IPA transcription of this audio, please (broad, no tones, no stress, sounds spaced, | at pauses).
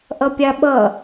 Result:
ʔ ʌ pʲ a ɓ ʌ